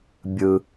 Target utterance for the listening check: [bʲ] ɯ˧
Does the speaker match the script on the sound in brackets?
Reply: yes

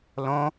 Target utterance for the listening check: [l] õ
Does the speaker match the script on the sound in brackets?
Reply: yes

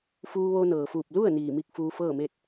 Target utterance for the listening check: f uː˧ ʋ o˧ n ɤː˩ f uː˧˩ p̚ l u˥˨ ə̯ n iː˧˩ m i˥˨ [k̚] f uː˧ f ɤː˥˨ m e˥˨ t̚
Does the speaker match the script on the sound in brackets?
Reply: yes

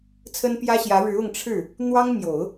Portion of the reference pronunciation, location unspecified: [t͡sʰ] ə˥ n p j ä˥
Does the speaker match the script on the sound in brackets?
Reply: yes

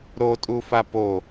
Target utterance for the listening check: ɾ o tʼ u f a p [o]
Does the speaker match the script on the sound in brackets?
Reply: yes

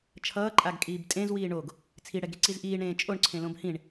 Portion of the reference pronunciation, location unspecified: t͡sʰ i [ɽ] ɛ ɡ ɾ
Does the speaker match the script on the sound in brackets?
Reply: yes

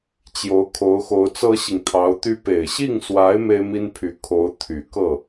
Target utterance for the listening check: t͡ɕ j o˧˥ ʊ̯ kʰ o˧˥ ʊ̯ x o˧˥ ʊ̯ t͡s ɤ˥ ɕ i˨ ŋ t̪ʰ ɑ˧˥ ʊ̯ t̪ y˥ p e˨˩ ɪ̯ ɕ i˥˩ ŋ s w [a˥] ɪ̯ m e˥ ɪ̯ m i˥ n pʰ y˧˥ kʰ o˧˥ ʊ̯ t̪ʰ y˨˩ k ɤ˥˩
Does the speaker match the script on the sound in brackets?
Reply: no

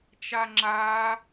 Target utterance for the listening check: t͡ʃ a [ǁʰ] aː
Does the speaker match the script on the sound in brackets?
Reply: no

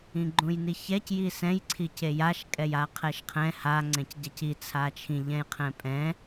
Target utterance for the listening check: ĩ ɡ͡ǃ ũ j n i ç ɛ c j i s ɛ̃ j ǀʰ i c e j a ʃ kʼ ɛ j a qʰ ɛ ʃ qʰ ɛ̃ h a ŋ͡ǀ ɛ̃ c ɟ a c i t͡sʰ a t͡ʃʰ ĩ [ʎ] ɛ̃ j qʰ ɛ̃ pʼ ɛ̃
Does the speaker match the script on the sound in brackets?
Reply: yes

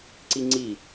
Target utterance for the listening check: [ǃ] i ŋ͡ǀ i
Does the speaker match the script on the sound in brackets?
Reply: no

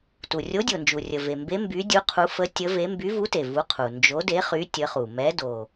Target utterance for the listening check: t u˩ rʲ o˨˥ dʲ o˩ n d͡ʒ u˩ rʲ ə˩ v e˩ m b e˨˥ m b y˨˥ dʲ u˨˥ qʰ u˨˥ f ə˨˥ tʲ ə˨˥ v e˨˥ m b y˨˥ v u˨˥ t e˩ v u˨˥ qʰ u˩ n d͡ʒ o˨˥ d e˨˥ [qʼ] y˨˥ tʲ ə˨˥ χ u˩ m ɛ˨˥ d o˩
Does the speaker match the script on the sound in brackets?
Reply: no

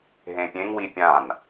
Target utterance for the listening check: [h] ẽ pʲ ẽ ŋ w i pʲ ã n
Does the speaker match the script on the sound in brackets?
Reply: no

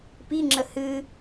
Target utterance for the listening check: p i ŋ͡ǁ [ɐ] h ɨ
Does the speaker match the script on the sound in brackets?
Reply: no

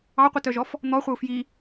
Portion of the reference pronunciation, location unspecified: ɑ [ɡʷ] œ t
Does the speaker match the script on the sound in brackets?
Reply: no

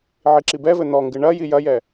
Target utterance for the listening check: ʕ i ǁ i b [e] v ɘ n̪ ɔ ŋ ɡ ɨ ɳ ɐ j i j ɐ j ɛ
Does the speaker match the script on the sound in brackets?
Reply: no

